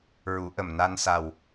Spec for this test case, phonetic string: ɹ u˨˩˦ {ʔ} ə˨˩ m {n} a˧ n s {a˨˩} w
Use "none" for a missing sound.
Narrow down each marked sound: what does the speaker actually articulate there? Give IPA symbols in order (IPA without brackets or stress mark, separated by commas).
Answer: ʔ, n, a˨˩